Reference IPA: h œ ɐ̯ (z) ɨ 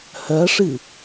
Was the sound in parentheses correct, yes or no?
no